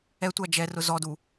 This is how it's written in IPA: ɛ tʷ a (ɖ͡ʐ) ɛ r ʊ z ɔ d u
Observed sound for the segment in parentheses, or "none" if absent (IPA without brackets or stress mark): d͡ʒ